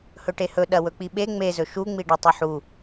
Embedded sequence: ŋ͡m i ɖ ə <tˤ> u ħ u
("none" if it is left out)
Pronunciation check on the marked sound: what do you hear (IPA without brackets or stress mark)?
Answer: tˤ